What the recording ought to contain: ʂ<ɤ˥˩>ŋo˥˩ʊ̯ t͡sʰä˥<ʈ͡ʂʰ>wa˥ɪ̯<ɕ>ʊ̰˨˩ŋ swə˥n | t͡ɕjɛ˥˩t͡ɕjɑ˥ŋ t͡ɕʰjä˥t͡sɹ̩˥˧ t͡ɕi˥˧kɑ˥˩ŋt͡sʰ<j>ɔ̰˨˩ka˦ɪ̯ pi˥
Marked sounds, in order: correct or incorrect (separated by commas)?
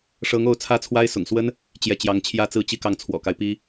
incorrect, incorrect, incorrect, incorrect